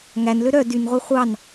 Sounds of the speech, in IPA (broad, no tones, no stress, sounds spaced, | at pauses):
ŋ æ n l ø ɾ œ d y n ʁʷ e χʷ ɑ n